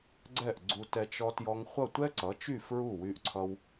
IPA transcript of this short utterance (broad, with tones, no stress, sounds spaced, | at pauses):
ɡ͡ǀ ɛ˥˩ ʔ ɡ͡ǀ u˧ t ɛ˧ t͡ʃ ɔ˧ t j ɔ˧ ŋ χʷ ʌ˥˩ tʷ ɛ˥ ǀ ʌ˩˥ t͡ʃ y˥˩ f ɹ u˥˩ w y˧ ʔ ǀʰ ʌ˧ w